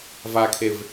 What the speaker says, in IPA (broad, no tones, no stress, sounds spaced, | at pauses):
v a kʰ e v